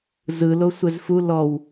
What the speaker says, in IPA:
zɯ losʷɛzfu lɔw

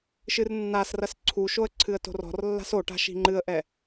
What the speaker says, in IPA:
ʃɨrnːasrɐs ǀʰuʃoə̯ ǀʰɨə̯to̤rɔ̤rlːa̤s oʈa̤ ʃi̤ŋ͡ǃɨə̯ʔɛ

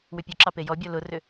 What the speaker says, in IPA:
wʏpʲʊǁɑ pejɔbʲɔ lʊrʏ

